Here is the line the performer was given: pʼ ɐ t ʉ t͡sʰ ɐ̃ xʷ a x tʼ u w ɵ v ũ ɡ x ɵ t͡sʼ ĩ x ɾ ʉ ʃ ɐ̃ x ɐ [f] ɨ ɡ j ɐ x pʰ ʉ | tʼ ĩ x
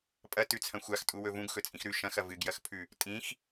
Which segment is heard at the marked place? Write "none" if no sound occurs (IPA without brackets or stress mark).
v